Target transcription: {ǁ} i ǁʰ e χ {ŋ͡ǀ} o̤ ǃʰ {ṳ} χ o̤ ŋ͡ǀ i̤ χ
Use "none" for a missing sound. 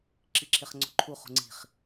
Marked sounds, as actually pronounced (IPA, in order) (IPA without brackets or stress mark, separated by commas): ǁ, ŋ͡ǀ, u